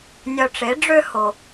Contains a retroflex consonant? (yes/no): yes